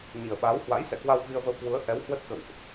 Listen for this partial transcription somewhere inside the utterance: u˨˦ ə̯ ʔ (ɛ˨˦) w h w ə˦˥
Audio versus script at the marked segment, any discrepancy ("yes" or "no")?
no